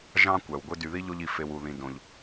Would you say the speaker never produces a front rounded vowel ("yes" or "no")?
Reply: no